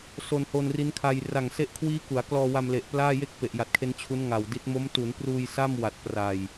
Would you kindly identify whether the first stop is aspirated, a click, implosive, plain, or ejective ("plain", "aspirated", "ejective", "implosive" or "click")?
aspirated